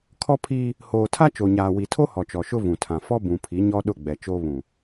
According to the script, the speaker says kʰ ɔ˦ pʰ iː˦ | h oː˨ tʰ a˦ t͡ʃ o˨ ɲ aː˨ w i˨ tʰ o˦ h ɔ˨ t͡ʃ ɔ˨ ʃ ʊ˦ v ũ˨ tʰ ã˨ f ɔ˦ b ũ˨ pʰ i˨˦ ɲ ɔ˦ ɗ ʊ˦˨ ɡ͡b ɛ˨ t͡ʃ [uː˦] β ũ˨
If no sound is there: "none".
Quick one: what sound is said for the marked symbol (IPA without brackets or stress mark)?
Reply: oː˦